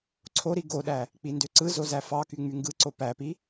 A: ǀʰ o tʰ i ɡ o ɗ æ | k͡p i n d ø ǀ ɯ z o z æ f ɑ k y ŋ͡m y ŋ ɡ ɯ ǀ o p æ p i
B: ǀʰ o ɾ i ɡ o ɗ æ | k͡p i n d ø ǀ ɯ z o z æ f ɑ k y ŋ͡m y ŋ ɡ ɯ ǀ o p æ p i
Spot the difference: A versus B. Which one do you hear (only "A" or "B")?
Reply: B